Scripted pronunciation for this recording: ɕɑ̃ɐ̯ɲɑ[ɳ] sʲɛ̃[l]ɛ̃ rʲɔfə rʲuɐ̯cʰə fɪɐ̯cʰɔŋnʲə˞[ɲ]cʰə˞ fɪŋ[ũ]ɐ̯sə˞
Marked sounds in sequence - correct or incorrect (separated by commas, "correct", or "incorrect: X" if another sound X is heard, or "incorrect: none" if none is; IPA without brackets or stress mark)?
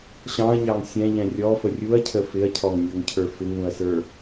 incorrect: ŋ, incorrect: ʎ, incorrect: ŋ, correct